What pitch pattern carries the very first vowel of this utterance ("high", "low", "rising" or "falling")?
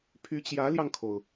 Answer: rising